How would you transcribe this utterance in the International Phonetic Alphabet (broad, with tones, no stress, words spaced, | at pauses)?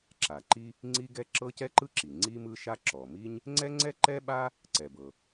ǁa˩ǃi˥ | ŋ͡ǀi˥ɡɛ˥ ǁɤ˥cɛ˥ǃɯ˥ǁi˩ ŋ͡ǀi˥mɯ˥ʃa˥ ǁɔ˩mi˥ɲ | ŋ͡ǀɛ˥ŋ͡ǀɛ˥ǃɛ˥ɓa˥ | ǀɛ˩bɤ˩